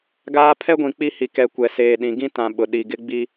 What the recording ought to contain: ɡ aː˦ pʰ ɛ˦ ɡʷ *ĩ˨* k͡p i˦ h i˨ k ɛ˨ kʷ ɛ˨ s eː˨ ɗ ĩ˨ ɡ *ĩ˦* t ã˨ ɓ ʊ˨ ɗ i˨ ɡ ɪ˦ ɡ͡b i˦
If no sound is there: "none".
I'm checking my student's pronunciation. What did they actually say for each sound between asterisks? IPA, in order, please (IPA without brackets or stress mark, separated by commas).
ĩ˨, ĩ˦